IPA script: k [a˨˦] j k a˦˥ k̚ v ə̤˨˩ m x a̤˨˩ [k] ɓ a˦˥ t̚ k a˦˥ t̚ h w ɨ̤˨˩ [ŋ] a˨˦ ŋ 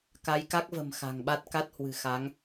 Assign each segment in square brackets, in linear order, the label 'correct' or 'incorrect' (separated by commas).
correct, incorrect, incorrect